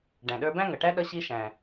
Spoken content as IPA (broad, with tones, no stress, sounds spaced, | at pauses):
ɖ æ̃˩ ɗ ə˞˧ b æ̃˥ ŋ ʌ˩ ʈ æ˥ ɗ ʌ˧ ɕ i˧ ʃ æ̃˩